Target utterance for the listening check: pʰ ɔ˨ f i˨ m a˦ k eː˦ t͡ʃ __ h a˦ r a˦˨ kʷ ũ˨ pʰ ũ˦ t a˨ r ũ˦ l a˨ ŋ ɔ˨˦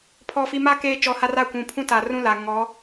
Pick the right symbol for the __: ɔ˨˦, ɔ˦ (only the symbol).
ɔ˨˦